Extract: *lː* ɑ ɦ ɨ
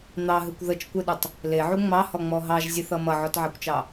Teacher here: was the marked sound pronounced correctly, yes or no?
no